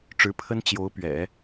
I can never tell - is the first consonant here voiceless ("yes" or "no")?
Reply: yes